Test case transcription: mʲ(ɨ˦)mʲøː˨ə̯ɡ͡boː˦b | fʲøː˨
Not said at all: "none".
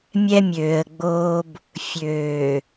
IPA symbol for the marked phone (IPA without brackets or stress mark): ɛ˦